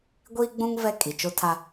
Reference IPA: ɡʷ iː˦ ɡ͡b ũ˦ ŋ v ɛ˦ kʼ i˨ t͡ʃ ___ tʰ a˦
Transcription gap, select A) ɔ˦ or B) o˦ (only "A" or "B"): B